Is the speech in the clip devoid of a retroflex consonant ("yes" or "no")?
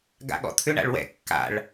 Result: no